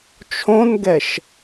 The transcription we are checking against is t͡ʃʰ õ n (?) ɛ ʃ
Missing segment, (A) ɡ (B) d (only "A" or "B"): A